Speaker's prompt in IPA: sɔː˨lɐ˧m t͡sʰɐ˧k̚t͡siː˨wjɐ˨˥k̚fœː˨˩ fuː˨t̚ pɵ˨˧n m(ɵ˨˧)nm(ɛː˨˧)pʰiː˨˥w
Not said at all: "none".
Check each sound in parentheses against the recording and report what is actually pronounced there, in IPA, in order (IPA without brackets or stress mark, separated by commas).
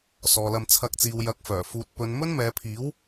ɵ˥, ɛː˨˧